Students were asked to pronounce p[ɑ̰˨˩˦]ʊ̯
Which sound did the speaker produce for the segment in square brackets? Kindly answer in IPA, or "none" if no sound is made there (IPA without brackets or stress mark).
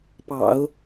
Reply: ɑ̰˨˩˦